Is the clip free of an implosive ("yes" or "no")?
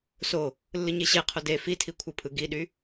no